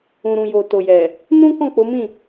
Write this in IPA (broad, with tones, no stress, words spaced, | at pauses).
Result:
ũ˨ ɾũ˨ jo˨to˨jɛ˨ | nũ˦kɔ̃˦˨ k͡po˨˦mĩ˦˨